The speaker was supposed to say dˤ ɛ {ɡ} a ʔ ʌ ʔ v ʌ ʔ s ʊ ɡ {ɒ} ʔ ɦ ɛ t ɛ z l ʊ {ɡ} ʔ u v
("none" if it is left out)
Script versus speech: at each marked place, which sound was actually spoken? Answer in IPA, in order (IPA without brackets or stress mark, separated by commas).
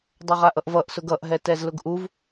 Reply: ʁ, ʌ, ɡ